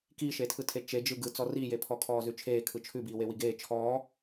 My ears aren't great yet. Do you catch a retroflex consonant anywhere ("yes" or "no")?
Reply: no